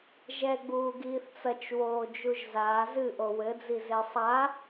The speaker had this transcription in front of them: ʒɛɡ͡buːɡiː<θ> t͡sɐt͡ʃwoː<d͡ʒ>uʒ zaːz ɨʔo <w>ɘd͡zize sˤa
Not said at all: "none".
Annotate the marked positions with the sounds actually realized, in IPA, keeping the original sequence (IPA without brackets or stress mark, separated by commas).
θ, d͡ʒ, w